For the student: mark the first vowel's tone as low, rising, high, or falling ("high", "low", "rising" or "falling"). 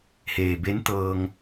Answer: low